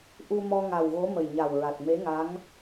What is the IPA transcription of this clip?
ʔu˧mɔ˧ ŋa˨˩wɣo˧˥ mə˨˩jɲa˨˩wɹa˨˩t̚ me˧˥ŋa˧˥ŋ

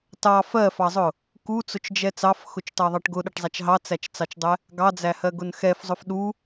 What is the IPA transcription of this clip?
tɑ fɜfɑzˤʊ | kut͡sʊt͡ʃd͡ʒɛ t͡sɑfxʊt͡ʃtɑðˤɑʈ ɡʊɗʌʈzˤæt͡ʃ ɦɑt͡sæt͡ʃt͡sɑt͡ʃdˤɛ | ɡɑd͡zæhɜɡʊn xɛfzˤʊf ɗu

